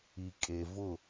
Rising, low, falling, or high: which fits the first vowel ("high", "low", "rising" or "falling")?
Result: low